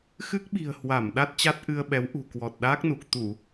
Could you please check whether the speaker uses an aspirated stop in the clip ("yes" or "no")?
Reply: no